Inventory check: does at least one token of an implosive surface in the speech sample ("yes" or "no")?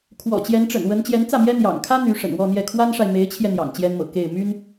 no